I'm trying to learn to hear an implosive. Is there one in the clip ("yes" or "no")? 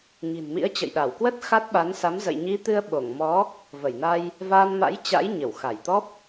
yes